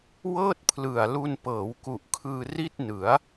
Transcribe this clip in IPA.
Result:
w ɤː˥˩ t̚ pʰ l ɯ˨˩ a̯ l u˧ n p ɤː˩˦ w k u˨˩ ʔ kʰ ɯː˧ r i˥˩ t̚ n ɯ˩˦ a̯

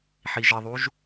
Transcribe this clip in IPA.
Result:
ħ i ʒ ɘ ðˤ u ʒ

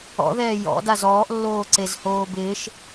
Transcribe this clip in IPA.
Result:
ɔ̰ ð ɛː j ɔ̰ d a z ɔː ʔ lː oː ǀ e z h oː b ɪː ʃ

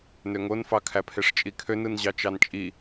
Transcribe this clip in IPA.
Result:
n ø ŋ o n f ɑ kʰ æ pʰ e ʂ t͡ʃʼ i kʰ ø n ɯ n ʑ ɑ t͡ʃ ɑ n t͡ʃʼ i

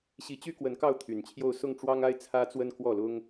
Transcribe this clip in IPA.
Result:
ɕ i˧˥ t͡ɕ y˥ k w ə˧˥ n k ɑ˥˩ ʊ̯ t̪ʰ y˨˩ n t͡ɕʰ j o˥˧ ʊ̯ s ʊ˥˩ ŋ ʈ͡ʂ w ɑ˥ ŋ a˥ ɪ̯ t͡sʰ ä˥ t͡s w ə˥ n k w ɔ˥˩ l ʊ˥ ŋ

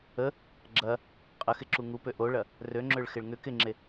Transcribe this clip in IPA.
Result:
ə | ɡ͡ǁ ɐ | qʼ ə x ɪ ǁ u ŋ u p ø ʔ o ɭ ɐ | r ø ŋ͡ǁ ø ɭ x ɪ ɭ ŋ ʏ k ɪ ŋ͡ǁ e

